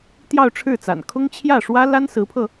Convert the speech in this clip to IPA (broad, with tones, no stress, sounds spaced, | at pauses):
t̪ j ɑ˥˧ ʊ̯ ʈ͡ʂʰ ɻ̩˥˩ t͡s a̰˨˩ n kʰ ʊ˥ ŋ t͡ɕʰ j ä˥˩ ʂ w ä˥ l a˥ n s ɹ̩˧˥ pʰ ɤ˧